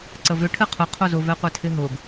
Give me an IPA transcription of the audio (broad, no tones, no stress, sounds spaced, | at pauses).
ǀ ə v ʏ ʈʰ ɨ qʰ ʊ qʰ o z ʊ v ɛ qʷ ɛ tʰ ɪ ɦ ʊ ɡ